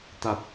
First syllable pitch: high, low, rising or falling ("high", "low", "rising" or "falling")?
low